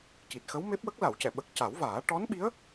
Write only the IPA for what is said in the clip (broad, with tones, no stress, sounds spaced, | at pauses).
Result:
c i˨˩ t̚ x ə˧˥ w m e˦˥ p̚ w ə˦˥ k̚ l a˨˩˨ w c ɛ˨˩˨ ɓ ə˨˩ k̚ c a˨˩˦ w v aː˨˩˦ ʈ ɔ˧˥ n ɓ i˧˥ ə̯